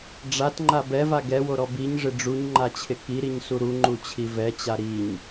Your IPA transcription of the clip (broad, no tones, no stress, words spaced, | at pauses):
ɖ͡ʐatŋ͡ǃa bɛva ɡɛwoɾɔ biɲʐɪ ɖ͡ʐuɲŋ͡ǃat͡ɕʰɪ kiɾiɲsu ɾuŋ͡ǃut͡ɕʰi vɛt͡ɕa ɾiɲ